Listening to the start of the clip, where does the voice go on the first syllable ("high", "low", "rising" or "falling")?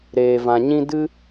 low